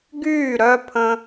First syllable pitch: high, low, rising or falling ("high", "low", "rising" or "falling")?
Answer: falling